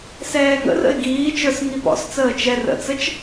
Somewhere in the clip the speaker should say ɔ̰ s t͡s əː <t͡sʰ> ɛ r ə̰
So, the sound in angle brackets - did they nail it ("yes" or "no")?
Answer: no